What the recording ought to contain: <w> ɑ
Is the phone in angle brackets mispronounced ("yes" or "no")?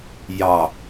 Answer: yes